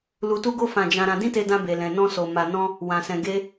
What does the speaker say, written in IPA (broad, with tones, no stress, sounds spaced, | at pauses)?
l u˧ t u˦ ɡ o˦ f ã˦˨ d͡ʒ ã˧ ɾ ã˧ d ĩ˦ t e˧ d ã˧ b e˨ l ɛ̃˨ n ɔ̃˧ s o˨ m a˨ n ɔ̃˧ | w ã˨ s ɛ̃˨ ɡ e˧